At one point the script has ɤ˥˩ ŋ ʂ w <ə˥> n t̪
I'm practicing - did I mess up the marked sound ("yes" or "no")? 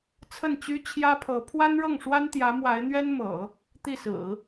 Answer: yes